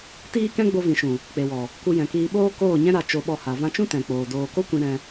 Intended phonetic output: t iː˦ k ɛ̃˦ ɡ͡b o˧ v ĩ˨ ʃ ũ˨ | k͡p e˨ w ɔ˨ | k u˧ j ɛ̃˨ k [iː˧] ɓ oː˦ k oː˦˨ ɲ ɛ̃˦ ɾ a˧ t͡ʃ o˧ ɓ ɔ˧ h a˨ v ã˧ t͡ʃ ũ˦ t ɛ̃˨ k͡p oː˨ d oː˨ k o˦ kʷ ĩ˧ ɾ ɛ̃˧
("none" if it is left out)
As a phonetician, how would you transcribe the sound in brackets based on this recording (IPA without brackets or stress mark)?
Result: iː˧